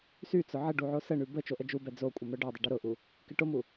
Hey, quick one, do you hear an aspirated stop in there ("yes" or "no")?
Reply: no